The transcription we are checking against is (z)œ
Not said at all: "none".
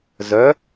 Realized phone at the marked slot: z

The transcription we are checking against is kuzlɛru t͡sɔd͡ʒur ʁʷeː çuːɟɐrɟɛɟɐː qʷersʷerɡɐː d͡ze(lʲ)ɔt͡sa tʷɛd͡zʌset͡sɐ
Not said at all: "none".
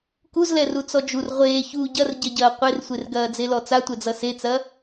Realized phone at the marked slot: l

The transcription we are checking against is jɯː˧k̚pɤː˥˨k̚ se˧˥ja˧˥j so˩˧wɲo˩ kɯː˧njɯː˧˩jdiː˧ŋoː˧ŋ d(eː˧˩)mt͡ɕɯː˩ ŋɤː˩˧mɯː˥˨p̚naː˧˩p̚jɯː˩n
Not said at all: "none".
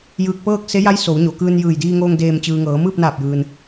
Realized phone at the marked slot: eː˧˩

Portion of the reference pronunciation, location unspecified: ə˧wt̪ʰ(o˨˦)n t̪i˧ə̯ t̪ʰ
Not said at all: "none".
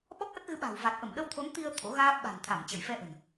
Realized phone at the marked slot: o˨˦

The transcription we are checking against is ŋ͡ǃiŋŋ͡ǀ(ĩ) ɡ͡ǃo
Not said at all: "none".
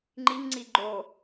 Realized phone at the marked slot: i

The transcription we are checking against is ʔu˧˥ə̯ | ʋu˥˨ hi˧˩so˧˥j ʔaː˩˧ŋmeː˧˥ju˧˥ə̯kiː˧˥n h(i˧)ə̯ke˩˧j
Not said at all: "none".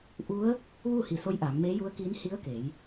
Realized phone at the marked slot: i˧˥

